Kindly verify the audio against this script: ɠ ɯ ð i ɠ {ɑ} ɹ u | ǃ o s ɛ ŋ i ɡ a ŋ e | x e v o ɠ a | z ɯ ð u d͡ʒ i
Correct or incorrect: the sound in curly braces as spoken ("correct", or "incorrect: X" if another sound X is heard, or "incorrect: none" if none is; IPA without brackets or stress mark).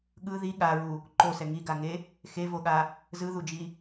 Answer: incorrect: a